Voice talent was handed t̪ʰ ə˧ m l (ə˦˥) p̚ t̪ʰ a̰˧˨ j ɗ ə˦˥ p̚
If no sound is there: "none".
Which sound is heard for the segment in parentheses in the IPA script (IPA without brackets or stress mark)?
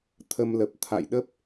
ə˨˩